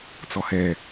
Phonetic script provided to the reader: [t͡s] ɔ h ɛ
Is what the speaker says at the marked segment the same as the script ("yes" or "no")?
yes